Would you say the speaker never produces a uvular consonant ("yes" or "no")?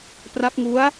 yes